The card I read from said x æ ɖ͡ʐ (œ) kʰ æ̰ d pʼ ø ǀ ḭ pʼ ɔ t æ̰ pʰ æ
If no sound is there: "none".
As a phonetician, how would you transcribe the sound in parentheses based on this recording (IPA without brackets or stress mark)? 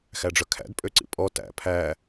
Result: œ